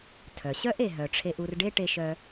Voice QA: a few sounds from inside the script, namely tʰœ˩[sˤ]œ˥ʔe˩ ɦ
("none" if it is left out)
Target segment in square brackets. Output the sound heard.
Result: ɕ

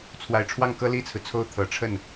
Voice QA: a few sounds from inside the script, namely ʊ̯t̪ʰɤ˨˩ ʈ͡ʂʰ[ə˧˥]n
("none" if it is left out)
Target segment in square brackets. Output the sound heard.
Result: ə˥˩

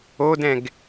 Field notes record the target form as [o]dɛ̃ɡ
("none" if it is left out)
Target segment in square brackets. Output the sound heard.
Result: o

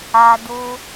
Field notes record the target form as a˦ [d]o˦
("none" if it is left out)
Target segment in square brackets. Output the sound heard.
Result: d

